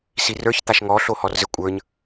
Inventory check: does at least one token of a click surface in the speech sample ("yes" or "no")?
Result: no